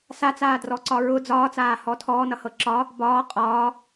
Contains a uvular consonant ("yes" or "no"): yes